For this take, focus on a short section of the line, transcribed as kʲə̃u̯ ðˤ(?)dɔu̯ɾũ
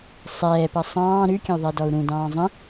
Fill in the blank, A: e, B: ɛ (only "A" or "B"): B